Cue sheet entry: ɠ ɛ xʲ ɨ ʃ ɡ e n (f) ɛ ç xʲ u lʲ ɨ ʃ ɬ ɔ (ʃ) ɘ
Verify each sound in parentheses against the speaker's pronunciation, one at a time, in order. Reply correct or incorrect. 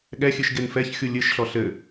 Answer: correct, incorrect: ɬ

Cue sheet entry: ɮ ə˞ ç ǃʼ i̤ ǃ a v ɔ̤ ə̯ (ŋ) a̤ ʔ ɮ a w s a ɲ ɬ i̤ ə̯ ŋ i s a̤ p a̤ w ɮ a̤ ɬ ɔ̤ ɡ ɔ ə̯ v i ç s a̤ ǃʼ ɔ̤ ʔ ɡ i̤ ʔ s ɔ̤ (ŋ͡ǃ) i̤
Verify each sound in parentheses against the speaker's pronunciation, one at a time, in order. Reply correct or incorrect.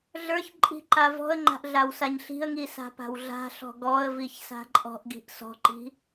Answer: incorrect: ŋ͡ǃ, incorrect: ǃ

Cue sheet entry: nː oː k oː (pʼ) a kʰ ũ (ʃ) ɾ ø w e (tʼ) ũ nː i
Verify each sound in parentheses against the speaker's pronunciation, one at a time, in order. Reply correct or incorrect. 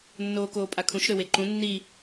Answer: correct, correct, incorrect: ǃ

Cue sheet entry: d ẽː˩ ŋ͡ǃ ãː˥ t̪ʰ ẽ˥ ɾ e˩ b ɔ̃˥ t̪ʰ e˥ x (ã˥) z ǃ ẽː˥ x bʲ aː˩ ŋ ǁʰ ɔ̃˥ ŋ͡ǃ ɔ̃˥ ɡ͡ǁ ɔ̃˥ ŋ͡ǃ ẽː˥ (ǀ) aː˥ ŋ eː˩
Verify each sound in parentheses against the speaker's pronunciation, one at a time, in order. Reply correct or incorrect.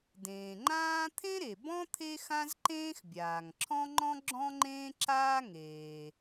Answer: correct, incorrect: ǁ

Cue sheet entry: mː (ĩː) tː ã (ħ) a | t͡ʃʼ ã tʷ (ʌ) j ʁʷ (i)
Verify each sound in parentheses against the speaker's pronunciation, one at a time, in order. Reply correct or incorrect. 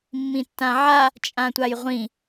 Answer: incorrect: ĩ, incorrect: ʕ, incorrect: a, incorrect: ĩ

